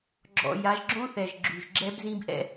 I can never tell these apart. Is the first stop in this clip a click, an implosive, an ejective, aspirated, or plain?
click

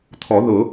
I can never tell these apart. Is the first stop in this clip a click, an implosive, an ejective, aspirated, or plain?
aspirated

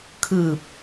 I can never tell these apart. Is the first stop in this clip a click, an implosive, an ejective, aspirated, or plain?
aspirated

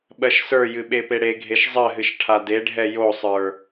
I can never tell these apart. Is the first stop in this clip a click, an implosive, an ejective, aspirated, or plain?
implosive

